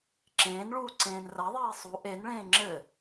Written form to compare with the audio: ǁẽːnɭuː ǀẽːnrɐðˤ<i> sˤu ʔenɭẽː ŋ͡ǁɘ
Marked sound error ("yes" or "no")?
yes